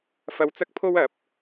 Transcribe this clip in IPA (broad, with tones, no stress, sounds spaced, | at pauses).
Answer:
f ɐ˧ w t͡s ɐ˥ k̚ pʰ o˥ w ɐ˨˥ p̚